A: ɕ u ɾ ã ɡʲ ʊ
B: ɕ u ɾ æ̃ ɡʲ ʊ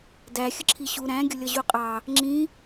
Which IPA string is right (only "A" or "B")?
B